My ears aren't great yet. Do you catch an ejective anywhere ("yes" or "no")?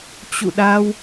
no